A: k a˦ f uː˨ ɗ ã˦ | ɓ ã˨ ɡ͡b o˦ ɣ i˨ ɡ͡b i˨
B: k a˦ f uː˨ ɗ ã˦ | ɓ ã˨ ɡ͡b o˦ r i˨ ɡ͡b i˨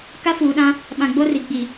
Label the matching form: B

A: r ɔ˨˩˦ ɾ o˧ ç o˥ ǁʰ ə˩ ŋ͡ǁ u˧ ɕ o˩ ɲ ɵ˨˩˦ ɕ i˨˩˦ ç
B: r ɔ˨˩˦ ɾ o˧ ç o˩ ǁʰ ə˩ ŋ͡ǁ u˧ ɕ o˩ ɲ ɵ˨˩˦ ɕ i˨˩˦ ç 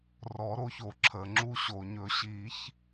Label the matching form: B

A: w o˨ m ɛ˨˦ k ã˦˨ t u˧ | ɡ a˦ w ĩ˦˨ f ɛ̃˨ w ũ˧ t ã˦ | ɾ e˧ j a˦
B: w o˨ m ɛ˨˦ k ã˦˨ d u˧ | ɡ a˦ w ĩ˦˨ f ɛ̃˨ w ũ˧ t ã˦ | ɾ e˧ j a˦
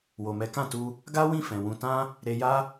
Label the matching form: A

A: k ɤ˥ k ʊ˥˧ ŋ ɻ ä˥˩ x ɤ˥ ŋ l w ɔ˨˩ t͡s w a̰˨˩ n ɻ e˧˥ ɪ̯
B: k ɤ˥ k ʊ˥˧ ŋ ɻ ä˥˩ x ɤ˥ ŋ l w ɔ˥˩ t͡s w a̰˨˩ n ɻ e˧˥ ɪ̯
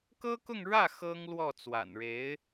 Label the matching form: B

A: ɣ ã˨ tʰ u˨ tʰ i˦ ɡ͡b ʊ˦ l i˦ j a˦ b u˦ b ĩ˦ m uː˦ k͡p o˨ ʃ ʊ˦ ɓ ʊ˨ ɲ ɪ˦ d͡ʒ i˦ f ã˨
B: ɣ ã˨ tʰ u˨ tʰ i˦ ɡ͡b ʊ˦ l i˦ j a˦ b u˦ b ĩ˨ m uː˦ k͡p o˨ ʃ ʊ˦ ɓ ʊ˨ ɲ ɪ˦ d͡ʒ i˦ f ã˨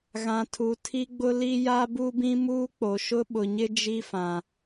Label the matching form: A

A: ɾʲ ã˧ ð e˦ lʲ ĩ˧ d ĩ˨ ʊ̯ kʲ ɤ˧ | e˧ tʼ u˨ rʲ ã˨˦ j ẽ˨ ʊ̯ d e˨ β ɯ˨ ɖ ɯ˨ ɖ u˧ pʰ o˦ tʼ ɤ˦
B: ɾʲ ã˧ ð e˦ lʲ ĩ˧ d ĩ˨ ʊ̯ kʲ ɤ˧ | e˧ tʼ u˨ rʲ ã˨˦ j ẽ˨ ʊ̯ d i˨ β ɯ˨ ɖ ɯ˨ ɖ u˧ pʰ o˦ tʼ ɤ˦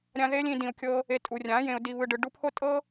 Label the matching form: B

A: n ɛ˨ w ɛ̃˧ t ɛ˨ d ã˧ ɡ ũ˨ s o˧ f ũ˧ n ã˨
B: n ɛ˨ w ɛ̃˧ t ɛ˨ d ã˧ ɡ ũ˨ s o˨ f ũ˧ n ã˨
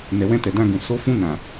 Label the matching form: A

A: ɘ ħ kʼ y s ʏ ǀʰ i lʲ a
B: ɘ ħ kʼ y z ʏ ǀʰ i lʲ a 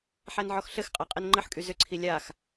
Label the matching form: B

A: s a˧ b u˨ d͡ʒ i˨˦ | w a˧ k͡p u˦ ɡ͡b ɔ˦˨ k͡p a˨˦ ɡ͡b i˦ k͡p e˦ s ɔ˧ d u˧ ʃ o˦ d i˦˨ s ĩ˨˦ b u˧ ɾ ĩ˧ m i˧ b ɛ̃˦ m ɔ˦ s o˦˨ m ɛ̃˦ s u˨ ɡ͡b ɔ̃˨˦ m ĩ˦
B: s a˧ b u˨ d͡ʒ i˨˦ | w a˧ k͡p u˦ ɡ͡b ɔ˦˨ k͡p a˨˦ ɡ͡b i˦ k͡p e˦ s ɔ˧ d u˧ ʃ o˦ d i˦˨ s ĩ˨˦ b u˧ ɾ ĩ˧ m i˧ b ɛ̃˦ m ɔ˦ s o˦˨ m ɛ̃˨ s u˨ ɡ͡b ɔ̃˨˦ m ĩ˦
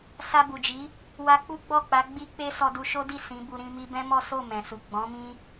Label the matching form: B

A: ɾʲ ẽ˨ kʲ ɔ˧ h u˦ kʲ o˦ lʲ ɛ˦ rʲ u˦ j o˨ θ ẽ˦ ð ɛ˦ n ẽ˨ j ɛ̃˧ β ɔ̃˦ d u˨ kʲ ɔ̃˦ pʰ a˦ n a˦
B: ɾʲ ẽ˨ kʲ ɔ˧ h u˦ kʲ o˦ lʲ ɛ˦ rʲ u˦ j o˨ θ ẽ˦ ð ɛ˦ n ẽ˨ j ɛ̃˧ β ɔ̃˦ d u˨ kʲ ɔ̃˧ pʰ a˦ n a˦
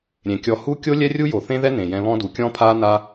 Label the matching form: A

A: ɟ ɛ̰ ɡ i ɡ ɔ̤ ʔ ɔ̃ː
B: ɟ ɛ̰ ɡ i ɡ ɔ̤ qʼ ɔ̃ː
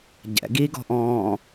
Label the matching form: A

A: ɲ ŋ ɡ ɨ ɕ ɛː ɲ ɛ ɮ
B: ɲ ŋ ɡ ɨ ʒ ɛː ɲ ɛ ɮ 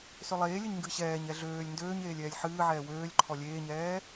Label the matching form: A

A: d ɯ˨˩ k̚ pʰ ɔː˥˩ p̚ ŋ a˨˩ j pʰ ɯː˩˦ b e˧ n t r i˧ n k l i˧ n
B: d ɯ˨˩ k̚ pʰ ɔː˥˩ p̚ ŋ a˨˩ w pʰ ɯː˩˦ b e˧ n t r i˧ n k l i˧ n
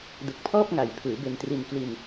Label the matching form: A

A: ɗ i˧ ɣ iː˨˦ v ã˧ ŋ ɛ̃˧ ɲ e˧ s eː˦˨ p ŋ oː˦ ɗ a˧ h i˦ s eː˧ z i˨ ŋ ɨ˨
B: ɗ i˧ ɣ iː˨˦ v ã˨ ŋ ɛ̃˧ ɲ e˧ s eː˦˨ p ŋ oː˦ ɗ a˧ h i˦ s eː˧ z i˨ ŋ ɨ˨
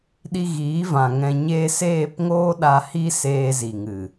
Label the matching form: B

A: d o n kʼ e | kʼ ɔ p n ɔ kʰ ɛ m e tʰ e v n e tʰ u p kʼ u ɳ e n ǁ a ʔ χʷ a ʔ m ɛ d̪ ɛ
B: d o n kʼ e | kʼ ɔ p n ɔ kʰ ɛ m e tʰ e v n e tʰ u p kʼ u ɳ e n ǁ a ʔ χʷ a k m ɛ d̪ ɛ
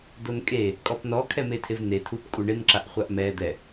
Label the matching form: A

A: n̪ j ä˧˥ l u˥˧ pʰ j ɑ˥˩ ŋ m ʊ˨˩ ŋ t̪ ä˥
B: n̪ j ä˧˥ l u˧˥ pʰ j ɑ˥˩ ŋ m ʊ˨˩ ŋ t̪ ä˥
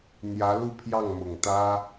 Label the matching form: A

